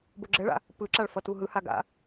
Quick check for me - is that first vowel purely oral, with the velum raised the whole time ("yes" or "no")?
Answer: yes